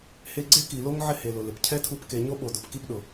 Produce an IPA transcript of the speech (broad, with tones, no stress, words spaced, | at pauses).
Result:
he˧ɡ͡ǀe˦ki˨lo˦ŋ ʕɪ˦he˨lʊ˨lɪ˨p cʰɛ˦tʰu˧pke˨ ɲo˦ɓo˨dʊ˨p ki˦pɗʊ˨